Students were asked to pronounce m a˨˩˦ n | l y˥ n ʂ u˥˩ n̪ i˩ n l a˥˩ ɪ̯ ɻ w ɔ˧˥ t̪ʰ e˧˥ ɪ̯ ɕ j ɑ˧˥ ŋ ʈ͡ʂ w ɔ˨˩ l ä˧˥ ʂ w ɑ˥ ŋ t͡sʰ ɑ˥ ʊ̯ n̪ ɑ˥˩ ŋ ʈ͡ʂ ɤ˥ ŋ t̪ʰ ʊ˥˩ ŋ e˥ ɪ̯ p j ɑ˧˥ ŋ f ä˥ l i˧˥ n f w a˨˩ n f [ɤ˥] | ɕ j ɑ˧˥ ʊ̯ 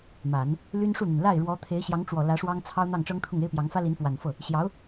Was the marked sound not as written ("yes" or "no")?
yes